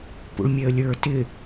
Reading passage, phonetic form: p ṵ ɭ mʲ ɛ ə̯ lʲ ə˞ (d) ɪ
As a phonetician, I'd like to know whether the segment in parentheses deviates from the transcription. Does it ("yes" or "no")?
yes